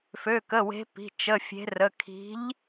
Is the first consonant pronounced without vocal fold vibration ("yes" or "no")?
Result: yes